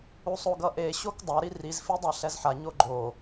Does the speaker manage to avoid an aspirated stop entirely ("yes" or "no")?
yes